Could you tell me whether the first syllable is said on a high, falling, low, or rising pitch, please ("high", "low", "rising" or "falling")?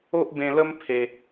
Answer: high